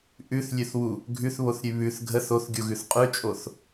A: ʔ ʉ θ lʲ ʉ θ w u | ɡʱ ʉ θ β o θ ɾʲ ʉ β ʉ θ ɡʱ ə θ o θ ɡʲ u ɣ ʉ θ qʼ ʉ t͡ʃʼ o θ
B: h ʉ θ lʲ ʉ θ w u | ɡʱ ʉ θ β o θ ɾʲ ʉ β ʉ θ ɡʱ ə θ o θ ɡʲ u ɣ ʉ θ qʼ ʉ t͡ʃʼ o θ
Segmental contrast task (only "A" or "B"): A